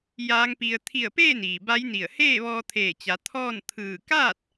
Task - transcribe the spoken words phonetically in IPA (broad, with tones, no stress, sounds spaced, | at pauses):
j aː˧˥ ŋ p i˧ ə̯ t̪ʰ i˧˩ ə̯ p eː˥˨ n iː˩ b a˧˥ j n i˧˩ ə̯ h eː˥˨ ʋ ɔː˧ t̪ʰ eː˧˩ t͡ɕ a˩˧ t̪ʰ ɔː˥˨ n t̪ʰ ɯː˧˩ k aː˥˨ t̚